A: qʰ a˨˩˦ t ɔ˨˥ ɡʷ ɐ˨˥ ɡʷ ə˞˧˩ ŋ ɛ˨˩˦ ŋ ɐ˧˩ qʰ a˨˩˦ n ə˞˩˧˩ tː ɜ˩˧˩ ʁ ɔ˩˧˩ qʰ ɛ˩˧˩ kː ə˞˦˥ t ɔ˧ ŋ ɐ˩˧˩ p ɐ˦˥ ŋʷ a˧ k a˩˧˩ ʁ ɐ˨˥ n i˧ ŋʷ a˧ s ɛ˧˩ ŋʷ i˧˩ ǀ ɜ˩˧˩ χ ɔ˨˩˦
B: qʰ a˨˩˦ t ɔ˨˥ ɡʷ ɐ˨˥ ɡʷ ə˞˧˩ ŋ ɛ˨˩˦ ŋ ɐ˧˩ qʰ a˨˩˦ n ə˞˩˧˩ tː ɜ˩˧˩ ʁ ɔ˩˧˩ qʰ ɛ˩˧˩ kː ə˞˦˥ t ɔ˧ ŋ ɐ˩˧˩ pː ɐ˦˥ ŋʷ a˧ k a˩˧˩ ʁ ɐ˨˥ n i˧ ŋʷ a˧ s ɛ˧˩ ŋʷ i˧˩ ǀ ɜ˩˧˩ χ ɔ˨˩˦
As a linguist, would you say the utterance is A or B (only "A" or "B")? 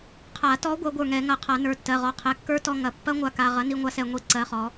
B